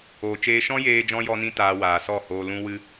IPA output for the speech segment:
oː˨t͡ʃeː˧ʃɔ̃˦ jeː˦d͡ʒɔ̃˦ jɔ˦nĩ˦taː˧ waː˨sɔ˦˨hoː˧ lũ˦wɨ˦

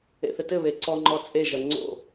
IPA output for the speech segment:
ḛθɘtɘβe ǀɔŋ͡ǃɔ t͡sʼeʒɐ ŋ͡ǀo̰

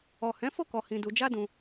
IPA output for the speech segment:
ɔ˨hɛ̃˨˦fo˦˨kɔ˨ hĩ˧du˧ d͡ʒa˦dũ˧

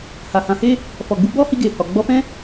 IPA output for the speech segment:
ha˨hã˨˦he˦ | fɔ˨ɡ͡bu˧ɡ͡bɔ˦hi˧ ɡe˨hɔ˨ ɡ͡bɔ˧fɛ̃˦

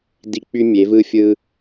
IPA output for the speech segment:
di˦ k͡py˦mʲe˨˦vɯ˦ fʲɯ˦

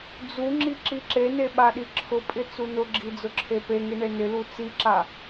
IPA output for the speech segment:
d͡zuŋ͡ǁi ǁiǁene ɓaɗiǁʰʊpʼɪ t͡sunʊɡ͡ǁi d͡zʊǁʰepeŋi ɳenɪlu t͡siǁa

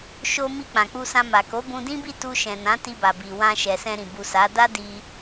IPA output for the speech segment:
ʃo˧mi˧ k͡pã˨k͡pu˧sã˧ma˨ ko˨˦bũ˧dĩ˦bi˦˨ tu˧ʃɛ̃˨ nã˨˦ti˧ba˨bi˨ wã˧ʃɛ˨sɛ̃˧ ɾĩ˨ bu˨ sa˨˦ da˦di˧

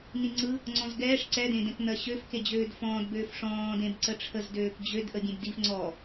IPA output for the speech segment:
nĩŋ͡ǀɯ | ŋ͡ǀɔ̃zɡɛːʂ ǀɛdẽdɛ̃kn̪ɜ ɕøfke d͡ʑøːdfɔ̃ːdbøːf ʂɔ̃ː dẽbǀəʈ͡ʂʰəzdøːk d͡ʑød ʔəbʲẽbdif ŋ͡ǀɔ

